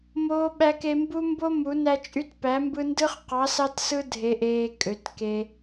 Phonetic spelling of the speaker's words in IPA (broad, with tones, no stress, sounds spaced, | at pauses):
m oː˦ ɓ æ˦ k e˦ m b u˦ m b o˦ m u˨˥ n æ˦ t͡ʃʼ y˦ t p æ˨˥ m b ɯ˦ n d ɯ˦ χ q ɑ˨˥ s ɑ˦ t s ɯ˦ dʱ e˦ ʔ eː˦ kʼ ø˨˥ t k e˦